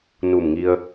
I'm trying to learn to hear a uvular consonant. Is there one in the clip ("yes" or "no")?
no